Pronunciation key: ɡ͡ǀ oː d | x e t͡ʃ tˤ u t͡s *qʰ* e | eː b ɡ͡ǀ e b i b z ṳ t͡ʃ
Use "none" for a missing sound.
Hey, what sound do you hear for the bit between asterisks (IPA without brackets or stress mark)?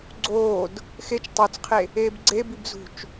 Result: qʰ